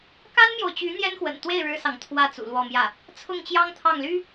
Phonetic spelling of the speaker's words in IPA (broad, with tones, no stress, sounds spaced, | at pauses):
k a˥ n m j o˨ ʊ̯ t͡ɕ y˧˥ n̪ j ɛ˥ n x w ə̰˨˩ n t̪ w e˥˩ ɪ̯ ɻ ɻ̩˥ s ɑ˨ ŋ t̪ʰ w ä˥˩ t͡s ṵ˨˩ l w ɔ˥˧ m j ä˥˩ | t͡sʰ ʊ˥˩ ŋ t͡ɕ j ɑ˥ ŋ t̪ʰ ɑ˥˩ ŋ l y˥